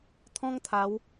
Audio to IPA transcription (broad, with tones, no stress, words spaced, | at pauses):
t̪ʰɔ̃˦ŋ t̪ʰa˨˦w